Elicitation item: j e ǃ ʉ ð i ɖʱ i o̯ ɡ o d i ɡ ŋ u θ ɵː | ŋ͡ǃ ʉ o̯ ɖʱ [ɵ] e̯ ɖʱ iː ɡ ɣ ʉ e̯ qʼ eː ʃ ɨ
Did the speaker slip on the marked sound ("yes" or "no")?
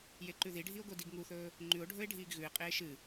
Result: no